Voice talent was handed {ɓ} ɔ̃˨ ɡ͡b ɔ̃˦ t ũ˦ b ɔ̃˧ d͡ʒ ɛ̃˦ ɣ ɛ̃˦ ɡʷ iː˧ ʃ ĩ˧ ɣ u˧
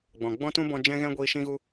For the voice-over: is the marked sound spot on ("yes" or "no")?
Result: no